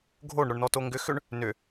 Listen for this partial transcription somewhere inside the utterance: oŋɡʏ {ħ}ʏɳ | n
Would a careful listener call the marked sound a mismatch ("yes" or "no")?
yes